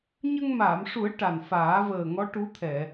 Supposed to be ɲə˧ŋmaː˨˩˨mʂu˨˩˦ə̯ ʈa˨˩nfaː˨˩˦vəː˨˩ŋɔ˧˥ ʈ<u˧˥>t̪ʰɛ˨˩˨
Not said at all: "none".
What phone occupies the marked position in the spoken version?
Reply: u˧˥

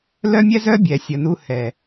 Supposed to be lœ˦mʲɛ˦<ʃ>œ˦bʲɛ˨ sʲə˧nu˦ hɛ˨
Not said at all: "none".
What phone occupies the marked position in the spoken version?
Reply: z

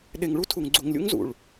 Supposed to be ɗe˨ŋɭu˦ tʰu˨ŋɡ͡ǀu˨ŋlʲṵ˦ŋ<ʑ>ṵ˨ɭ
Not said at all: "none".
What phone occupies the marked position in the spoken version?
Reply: z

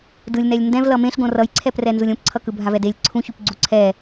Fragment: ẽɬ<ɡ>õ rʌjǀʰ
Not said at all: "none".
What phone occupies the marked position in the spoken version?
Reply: ɡ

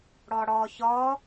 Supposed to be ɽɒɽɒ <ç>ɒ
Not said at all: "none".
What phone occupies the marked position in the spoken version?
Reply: ç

